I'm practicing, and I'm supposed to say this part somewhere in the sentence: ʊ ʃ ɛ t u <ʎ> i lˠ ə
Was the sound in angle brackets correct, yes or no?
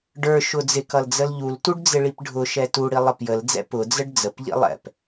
no